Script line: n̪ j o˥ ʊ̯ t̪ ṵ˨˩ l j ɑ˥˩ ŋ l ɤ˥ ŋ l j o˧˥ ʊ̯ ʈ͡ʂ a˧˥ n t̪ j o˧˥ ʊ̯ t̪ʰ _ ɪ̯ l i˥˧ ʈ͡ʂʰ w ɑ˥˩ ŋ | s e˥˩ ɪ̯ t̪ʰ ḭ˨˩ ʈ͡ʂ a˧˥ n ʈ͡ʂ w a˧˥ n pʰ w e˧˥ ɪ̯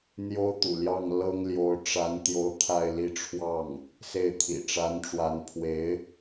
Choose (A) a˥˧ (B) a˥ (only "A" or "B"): A